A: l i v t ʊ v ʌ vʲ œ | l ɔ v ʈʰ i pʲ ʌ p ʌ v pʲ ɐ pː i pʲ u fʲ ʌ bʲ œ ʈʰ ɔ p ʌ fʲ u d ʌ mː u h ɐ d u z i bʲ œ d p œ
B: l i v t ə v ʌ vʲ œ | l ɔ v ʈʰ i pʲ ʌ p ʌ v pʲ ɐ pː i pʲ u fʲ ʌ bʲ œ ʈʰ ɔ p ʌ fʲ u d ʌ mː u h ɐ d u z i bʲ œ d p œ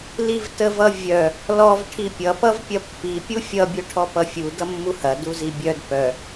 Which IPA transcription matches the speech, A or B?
B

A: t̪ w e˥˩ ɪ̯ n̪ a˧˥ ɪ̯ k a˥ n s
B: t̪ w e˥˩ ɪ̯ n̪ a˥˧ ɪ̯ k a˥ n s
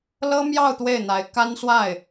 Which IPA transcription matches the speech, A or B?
A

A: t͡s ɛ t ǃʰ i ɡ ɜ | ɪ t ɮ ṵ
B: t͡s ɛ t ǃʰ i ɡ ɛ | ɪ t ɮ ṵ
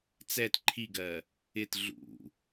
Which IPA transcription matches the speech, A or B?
A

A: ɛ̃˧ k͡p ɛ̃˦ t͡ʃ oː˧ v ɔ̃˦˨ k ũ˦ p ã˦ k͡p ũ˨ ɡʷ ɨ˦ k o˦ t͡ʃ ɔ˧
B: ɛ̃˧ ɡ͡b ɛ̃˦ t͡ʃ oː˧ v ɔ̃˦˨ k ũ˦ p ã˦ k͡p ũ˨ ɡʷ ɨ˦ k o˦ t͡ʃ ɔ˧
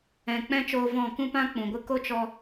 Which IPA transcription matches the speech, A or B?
A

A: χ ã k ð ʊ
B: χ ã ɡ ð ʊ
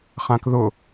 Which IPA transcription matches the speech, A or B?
A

